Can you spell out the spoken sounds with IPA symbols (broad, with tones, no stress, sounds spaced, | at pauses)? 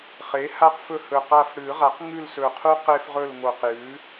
χ e˩˥ h a˦ q f ɵ˦˨ h ɵ˨˩ q a˦˨ f ɽ ɨ˨˩˦ ʁ a˩˥ q ŋ ʉ˦˨ l s ɵ˨˩ qʰ u˦ q e˦ f ʁ ɵ˦˨ l ŋ o˨˩ q j ʉ˩˥